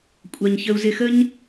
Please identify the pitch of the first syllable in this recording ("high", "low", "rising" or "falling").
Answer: high